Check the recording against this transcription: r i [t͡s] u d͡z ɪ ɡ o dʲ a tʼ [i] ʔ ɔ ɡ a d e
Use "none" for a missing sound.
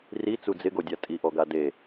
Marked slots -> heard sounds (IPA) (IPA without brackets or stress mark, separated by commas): t͡s, i